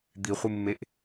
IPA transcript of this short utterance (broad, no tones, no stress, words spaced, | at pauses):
d̪iχʷɨmːeʔ